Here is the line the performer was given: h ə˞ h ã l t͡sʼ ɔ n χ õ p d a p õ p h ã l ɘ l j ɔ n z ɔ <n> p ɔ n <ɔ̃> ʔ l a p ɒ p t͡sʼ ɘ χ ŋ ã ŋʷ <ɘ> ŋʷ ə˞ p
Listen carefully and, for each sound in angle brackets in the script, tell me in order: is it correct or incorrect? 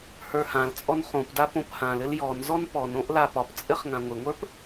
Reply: correct, incorrect, correct

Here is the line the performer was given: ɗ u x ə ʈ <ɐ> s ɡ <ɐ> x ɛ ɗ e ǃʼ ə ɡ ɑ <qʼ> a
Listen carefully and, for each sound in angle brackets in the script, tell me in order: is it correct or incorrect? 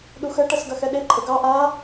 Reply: correct, correct, incorrect

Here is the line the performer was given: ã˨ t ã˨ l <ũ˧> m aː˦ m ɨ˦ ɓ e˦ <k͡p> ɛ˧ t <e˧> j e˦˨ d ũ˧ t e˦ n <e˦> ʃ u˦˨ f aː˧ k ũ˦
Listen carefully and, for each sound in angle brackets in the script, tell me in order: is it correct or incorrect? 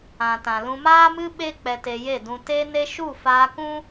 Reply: correct, correct, correct, correct

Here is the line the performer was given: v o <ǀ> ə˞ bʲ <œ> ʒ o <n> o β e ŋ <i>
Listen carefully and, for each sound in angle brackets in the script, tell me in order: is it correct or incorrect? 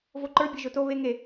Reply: incorrect, correct, incorrect, incorrect

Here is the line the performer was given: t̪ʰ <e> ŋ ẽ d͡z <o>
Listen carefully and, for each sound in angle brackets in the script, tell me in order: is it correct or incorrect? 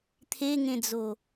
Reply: correct, correct

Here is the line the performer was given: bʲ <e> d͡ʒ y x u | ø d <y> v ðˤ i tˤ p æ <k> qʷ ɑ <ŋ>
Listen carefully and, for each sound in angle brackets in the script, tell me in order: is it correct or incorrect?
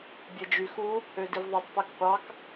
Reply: correct, incorrect, correct, incorrect

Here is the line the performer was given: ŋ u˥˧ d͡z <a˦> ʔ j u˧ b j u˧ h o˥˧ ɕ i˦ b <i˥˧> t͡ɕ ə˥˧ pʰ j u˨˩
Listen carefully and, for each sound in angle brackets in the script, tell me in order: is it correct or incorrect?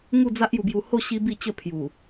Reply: correct, correct

